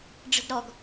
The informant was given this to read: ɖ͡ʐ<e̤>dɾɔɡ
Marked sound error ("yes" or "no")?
no